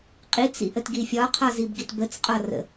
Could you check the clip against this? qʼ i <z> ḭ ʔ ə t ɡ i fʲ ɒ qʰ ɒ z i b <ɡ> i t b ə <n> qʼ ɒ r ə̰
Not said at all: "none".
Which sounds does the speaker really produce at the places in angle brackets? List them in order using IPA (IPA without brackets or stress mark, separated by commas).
t͡s, ɡ, t͡s